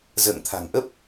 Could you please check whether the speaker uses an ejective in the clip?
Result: no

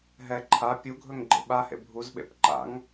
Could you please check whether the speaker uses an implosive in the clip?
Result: yes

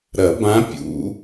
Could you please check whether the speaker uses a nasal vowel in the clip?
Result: yes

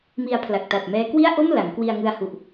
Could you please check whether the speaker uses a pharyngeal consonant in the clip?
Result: no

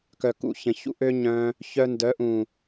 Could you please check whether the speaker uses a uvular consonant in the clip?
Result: no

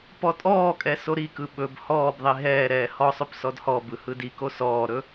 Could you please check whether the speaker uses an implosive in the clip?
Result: yes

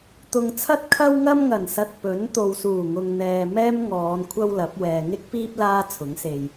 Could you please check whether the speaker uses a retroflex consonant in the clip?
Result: no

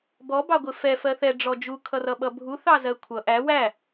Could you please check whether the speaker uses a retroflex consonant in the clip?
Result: yes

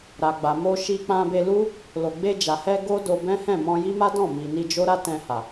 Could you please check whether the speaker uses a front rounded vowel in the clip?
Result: no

